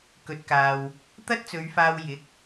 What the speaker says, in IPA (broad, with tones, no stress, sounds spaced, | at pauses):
k ɵ˨ t̚ k aː˨ w | t̪ ɐ˥ t̚ t͡s ɵ˨˧ ɥ f aː˧ w j ɪ˨˥ k̚